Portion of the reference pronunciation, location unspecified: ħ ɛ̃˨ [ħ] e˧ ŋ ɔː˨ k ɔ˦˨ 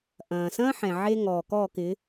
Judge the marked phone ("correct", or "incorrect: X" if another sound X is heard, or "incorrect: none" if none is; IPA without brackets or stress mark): incorrect: ʕ